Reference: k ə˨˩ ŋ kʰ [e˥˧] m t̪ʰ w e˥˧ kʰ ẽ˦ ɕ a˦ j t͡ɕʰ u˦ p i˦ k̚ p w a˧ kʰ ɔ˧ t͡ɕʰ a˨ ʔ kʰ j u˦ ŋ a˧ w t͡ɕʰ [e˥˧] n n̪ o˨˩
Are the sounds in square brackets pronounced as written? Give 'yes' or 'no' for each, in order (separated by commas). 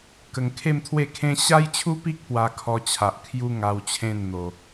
yes, no